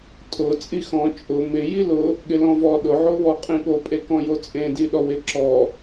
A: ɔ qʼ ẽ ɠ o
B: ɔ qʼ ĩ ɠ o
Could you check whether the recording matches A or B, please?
B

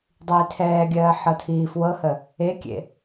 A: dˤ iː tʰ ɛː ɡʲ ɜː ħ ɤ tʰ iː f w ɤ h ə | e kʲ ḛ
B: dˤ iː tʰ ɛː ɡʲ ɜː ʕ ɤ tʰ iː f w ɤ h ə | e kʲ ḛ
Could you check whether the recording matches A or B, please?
A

